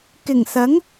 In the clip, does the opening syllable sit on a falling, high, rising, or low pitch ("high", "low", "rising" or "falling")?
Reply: low